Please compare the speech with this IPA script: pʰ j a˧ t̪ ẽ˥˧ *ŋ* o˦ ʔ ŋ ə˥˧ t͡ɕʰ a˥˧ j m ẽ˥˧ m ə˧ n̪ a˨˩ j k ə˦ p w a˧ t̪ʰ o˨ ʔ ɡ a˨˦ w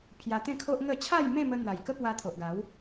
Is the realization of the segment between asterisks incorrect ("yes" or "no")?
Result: yes